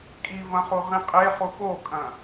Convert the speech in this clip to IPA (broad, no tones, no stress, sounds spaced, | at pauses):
kʼ i v ɐ̃ χ u ʁ ĩ qʼ e χ u ɓ o kʼ ɐ̃